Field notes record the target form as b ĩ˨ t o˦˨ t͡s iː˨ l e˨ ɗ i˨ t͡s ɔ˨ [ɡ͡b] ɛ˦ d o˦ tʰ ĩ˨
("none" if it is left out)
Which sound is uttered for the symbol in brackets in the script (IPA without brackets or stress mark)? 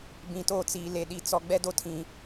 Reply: ɡ͡b